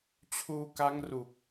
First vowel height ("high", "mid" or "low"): high